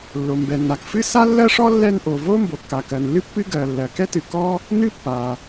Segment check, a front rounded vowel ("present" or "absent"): absent